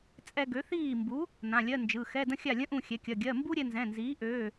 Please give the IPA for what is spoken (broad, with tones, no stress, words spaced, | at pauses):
t͡sʼɛ˧ ɡø˩˥θiː˥˩mbu˩˥ | nã˩˧˩ lʲɜ˧˥˧nd͡ʒɯ˩˧˩ xɛ˧˥˧də̃˥xʲa˥˩lʲə̃˥ ʔũ˥˩xʲɛ˩˥kʲɐ˩˧˩ ɡʲɜ˩˧˩mbu˥ɾʲɛ˧ nzɛ̃˩˧˩nziː˩˥ʔøː˩˧˩